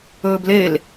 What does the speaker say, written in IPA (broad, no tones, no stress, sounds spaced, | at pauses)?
ɵː b l e l